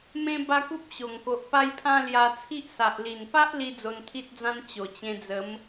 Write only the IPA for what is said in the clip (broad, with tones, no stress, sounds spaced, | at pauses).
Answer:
m ẽ˦ b a˦ k u˦ p̚ ɕ o˨˩ ŋ k o˨ ʔ p a˦ j pʰ ã˦ l j a˧ t͡sʰ i˦ ʔ s a˨ ʔ l i˨˩ n p a˦ ʔ l i˦ d͡z o˧ n t̪ʰ i˦ t̚ d͡z ã˦ n t͡ɕ o˨˩ t͡ɕ ẽ˧ d͡z ə˨˦ m